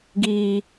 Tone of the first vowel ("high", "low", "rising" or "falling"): high